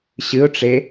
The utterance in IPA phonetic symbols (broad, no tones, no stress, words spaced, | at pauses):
ɕɨʊ̯ʈ͡ʂe